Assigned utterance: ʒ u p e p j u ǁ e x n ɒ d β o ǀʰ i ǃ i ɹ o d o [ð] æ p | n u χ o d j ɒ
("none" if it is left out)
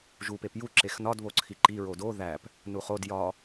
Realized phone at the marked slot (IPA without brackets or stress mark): ð